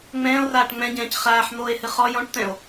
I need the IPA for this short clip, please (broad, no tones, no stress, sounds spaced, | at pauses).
ŋ͡m ɛ̃ː o̯ r aː ʈ ŋ͡m ɛ̃ ɟ ɛ̃ː c χ aː ħ n̪ oː e̯ h ɨ χ ɔ j ɔ̃ ʈ t̪ ɛ̃ o̯